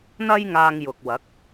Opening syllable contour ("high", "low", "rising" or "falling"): high